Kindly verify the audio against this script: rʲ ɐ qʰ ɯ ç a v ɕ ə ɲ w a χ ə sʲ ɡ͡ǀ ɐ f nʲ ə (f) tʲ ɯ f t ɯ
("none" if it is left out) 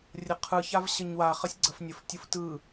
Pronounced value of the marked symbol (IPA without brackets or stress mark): f